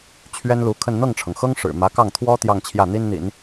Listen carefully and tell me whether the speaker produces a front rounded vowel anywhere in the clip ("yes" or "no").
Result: no